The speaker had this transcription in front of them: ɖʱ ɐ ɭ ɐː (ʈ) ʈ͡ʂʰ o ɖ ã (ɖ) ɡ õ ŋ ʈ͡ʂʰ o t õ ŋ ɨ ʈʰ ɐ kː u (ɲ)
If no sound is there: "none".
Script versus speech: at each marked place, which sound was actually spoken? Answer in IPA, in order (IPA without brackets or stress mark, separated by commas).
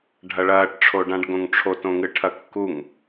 ʈ, ɖ, ŋ